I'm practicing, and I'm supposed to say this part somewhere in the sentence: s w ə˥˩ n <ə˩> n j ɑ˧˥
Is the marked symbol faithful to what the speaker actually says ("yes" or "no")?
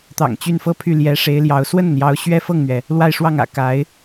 yes